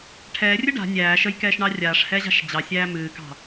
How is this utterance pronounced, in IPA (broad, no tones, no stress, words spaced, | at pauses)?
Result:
ʈʰɛːrʲɨ ɖa̤ nʲæː ʃəjkɛːʃɳɑ rʲaːʂhɛʑa̤ʃ d͡ʑɑsʲæː mɨːkɑ̤